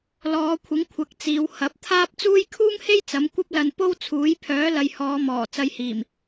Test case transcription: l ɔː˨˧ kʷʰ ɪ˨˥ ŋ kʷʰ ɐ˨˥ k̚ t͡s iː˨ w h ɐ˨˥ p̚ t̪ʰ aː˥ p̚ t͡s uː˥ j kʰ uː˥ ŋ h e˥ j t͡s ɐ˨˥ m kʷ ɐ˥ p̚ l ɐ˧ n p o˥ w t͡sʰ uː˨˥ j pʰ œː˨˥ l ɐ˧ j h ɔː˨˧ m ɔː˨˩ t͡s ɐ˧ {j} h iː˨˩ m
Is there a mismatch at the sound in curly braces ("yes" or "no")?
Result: no